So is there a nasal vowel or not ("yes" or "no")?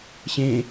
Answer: yes